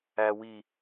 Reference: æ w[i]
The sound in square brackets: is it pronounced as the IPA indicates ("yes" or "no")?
yes